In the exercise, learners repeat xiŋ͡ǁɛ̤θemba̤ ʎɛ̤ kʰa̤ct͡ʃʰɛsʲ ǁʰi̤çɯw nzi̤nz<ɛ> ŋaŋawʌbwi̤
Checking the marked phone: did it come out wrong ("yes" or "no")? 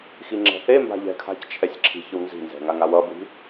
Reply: yes